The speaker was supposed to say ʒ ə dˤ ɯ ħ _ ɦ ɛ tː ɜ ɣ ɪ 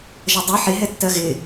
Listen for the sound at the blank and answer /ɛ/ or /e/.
e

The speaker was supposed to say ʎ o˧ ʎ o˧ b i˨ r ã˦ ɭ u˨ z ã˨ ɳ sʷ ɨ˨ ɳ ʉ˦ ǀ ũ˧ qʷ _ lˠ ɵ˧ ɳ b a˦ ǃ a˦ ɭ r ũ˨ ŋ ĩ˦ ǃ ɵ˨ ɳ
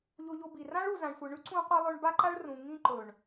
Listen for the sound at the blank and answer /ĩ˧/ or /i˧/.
i˧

